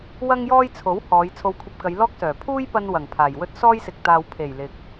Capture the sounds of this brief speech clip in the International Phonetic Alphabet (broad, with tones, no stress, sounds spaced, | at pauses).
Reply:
w ɐ˥ ŋ j ɔː˥ j t͡sʰ o˨˥ w h ɔː˨˧ j t͡sʰ o˧ w kʷʰ ɐ˧ p̚ k ɐ˨˧ j l ɔː˥ k̚ s œː˨˩ pʰ uː˥ j p ɐ˧ n w ɐ˨˩ ŋ pʰ aː˨˩ j w ɵ˥ t̚ s ɔː˥ j s ɪ˨ k̚ t̪ aː˨ w pʰ e˨˩ j l ɪ˨ k̚